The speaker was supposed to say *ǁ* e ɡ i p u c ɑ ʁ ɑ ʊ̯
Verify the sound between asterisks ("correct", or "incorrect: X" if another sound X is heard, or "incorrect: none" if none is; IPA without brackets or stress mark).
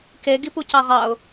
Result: incorrect: k